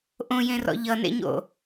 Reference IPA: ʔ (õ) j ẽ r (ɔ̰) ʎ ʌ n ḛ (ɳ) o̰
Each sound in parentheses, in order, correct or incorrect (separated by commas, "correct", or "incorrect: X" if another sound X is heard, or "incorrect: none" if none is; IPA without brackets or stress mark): correct, correct, incorrect: ɲ